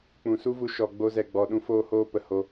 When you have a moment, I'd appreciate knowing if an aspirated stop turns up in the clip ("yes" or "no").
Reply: no